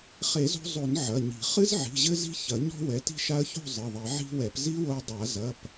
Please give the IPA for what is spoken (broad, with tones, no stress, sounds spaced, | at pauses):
χ e˨˩˦ z o̤˧ zˤ o˨˩˦ n ʕ ɐ˩˧˩ ɲ i̤˨˩˦ χ ɨ˦˥ z ʕ i̤˩˧˩ ʑ ɘ˦˥ z i̤˦˥ ç ɐ˨˩˦ ɲ ɔ̤˦˥ w ɛ˩˧˩ t i̤˥˧ ʃ a˦˥ ə̯ ç o̤˥˧ zˤ ɨ˩˧˩ ðˤ i˨˩˦ ʕ i̤˦˥ w ɛ˨˩˦ p z i˦˥ w o˧ dˤ a˨˩˦ z ɐ˩˧˩ p